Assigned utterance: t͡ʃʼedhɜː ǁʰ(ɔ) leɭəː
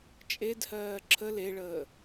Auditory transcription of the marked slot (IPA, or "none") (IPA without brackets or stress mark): ə